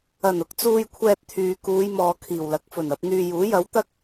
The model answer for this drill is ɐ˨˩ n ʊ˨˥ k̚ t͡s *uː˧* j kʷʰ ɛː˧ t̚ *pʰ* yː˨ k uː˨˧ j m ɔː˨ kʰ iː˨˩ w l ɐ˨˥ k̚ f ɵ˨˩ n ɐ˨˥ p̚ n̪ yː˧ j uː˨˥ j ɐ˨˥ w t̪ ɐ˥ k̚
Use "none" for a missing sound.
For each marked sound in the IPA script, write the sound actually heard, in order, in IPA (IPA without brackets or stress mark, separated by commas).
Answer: uː˧, t̪ʰ